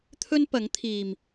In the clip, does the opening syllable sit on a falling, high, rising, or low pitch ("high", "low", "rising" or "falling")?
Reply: high